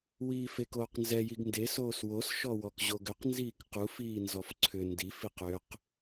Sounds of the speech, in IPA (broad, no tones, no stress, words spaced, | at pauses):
wiːfekoːqnzɛ jiɡnde soːswos ʃɔwɔkʑoɡʏq nziːkquf iːnzɔfǀʰʏ ndif iqʏq